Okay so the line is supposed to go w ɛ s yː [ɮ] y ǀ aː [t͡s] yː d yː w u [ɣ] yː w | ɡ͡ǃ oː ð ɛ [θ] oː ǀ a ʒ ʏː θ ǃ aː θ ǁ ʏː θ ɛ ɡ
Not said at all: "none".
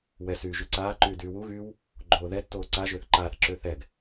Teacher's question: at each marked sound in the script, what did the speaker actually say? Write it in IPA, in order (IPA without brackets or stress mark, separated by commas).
ʒ, ǃ, ɣ, tː